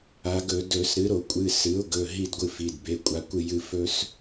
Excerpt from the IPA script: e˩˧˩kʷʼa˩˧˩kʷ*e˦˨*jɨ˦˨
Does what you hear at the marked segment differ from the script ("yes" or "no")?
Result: yes